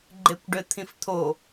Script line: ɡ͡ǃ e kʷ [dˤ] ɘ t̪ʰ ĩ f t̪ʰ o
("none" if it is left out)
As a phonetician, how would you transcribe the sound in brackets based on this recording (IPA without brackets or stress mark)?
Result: ɖ